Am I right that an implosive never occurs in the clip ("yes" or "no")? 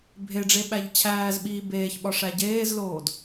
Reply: no